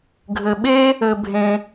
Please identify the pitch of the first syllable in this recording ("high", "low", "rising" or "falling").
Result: low